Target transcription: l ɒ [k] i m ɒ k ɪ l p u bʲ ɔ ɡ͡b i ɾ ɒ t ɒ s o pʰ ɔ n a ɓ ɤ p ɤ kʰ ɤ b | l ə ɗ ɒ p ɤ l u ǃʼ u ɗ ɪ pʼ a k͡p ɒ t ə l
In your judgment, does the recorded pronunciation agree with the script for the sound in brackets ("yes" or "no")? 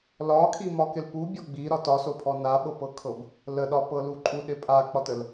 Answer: no